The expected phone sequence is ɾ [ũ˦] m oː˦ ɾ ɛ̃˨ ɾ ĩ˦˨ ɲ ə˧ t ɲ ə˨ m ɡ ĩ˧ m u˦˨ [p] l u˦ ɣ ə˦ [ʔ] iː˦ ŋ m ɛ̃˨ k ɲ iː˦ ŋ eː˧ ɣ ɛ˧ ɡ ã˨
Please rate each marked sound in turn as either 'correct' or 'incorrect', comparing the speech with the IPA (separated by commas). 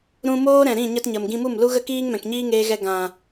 incorrect, incorrect, incorrect